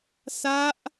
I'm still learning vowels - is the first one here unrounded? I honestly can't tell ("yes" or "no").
yes